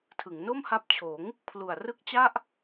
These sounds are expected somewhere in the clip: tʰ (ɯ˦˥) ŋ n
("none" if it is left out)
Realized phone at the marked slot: ɯ˩˦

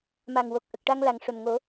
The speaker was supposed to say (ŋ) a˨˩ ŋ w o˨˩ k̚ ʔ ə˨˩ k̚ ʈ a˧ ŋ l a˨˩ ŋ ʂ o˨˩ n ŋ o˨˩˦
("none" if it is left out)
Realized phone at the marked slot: m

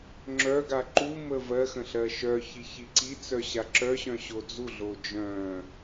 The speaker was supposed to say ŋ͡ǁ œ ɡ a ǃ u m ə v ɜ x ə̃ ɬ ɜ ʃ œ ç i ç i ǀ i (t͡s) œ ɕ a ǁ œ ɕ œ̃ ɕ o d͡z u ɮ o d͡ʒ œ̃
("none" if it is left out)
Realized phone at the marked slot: t͡s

